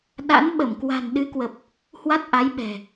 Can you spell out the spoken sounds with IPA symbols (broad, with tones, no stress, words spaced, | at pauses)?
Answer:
ɗa̰˧˥n ɓə˧˩m kwa̤˨˩nɗɨ˨˦kwə˨˩p̚ | hwa˦˥t̚ʔa˨˦jɓɛ̤˨˩